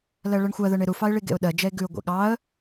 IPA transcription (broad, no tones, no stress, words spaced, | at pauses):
lɜɭɜɳxʷɜðɜɳ eɾufɑɪ̯ ɭiɡḛʊ̯ɗɜd͡ʒɛɪ̯ ɡʉʊ̯ɡʷḛ ɠɑə̯